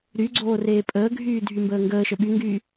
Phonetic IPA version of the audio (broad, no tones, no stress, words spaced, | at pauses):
ɾyɡ͡ǀoː reːpʼəːɡʱyː dʱymbəːŋɡəːʃə ɓyŋɡyː